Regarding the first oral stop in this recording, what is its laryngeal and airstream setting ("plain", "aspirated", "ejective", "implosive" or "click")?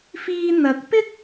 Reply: plain